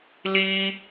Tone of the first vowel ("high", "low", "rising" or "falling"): high